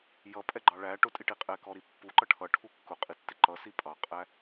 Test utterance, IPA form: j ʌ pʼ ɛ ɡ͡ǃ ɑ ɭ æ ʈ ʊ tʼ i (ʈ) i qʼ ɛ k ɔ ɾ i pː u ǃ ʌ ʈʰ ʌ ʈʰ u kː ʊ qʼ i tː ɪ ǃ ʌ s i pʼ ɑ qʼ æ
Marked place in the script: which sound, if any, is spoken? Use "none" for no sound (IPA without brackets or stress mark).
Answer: ʈ